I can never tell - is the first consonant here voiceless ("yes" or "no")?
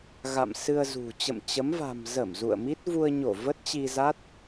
no